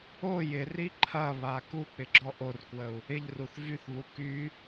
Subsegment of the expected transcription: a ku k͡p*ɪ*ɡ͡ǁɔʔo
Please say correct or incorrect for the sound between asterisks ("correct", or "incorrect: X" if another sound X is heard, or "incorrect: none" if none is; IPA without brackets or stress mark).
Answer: correct